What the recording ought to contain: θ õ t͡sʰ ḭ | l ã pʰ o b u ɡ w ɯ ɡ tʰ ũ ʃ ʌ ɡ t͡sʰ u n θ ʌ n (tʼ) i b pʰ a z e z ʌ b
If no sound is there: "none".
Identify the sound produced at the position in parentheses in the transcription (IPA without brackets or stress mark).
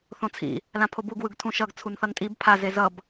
tʼ